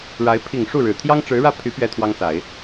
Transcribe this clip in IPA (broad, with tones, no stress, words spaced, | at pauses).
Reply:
ɻa˧˥ɪ̯ pʰi˨˩ŋ ʂu˥˩ ɻɻ̩˨˩ t̪ʰjɑ˥ŋʈ͡ʂɻ̩˧˥ɻä˥˩ pʰy˧˥ pɥɛ˥t̪ʰwɑ˥ŋsa˨˩˦ɪ̯